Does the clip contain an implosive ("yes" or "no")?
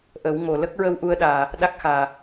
yes